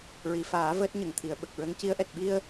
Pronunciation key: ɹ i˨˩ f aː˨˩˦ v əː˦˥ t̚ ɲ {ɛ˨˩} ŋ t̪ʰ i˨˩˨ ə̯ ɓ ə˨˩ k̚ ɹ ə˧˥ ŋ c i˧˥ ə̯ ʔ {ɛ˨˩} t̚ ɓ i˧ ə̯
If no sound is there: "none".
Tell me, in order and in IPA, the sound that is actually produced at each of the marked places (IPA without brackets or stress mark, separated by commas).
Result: ə˨˩, ɛ˨˩